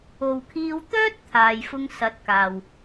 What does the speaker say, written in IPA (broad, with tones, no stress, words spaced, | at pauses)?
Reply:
o˨wkʰiː˧wt̪œː˥t̚ t̪ʰaː˧jfʊ˥ŋ sɐ˨˥t̚kaː˨w